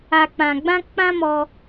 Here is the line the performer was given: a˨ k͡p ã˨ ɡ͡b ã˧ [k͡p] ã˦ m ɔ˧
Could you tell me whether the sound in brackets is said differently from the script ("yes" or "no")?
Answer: no